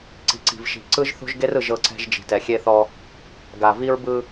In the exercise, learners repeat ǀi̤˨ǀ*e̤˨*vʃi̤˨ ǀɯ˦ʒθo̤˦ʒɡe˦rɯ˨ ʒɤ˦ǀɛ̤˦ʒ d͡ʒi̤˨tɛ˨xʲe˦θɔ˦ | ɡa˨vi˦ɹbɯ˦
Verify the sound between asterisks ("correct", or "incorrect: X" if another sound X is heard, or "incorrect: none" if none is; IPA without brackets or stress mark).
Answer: incorrect: i̤˨